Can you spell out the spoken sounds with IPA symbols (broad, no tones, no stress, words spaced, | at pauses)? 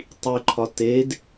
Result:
tˤiǃʰɒ ted